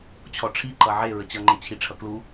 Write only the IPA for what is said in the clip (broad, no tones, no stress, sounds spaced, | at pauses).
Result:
t͡ɕʰ ɔ ʈ͡ʂʰ i ǃ ʌ ʕ e ɹ ə t͡ɕ ʌ ŋ͡ǃ e t͡ɕʰ i ʈ͡ʂʰ ʌ k l u